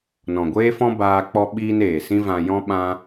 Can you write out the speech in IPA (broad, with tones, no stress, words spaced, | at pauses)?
nɔ̃˨ɡʷeː˦fɔ̃˦ baː˧ k͡pɔ˧ɓiː˧n eː˨sĩ˦vã˧jɔ̃˦ ɓã˧